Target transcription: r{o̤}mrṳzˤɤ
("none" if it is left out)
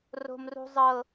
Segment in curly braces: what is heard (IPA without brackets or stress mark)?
o̤